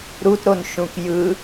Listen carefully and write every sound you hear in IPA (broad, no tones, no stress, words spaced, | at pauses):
ɾutɾonʃũk jɯ